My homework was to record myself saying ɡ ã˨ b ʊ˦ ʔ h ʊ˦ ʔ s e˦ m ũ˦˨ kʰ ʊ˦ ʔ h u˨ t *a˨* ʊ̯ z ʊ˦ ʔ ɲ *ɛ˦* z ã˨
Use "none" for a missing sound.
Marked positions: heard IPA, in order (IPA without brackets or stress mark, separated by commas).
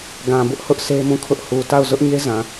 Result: a˦˨, e˦